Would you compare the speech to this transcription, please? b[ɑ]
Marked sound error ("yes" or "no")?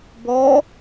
yes